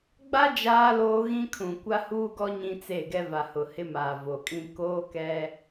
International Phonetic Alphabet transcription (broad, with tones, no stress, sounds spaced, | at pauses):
ɡ͡b a˦ d͡ʒ aː˦ l oː˦ ɣ ĩ˦ kʰ ũ˨ kʷ a˦ h uː˦ ɡ ɔ˦ ɲ ĩ˦ t͡s e˦˨ ɡ ɛ˦ v a˨ h ʊ˨ h ɪ˦ m aː˨ v o˨ kʼ ĩ˦ k oː˦ k ɛ˦